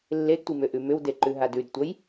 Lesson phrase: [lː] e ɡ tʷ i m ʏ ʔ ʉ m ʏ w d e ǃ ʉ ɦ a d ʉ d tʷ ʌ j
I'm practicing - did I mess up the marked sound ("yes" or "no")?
no